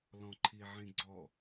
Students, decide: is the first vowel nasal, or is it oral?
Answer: nasal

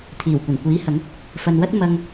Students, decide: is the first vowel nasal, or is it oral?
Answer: oral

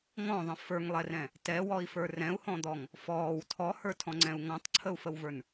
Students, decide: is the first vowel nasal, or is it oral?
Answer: nasal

